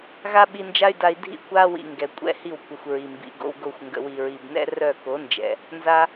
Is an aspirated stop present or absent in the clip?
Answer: absent